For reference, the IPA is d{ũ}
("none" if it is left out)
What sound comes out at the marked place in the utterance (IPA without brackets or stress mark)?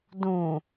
ũ